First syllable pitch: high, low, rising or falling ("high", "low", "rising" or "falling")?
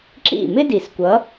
falling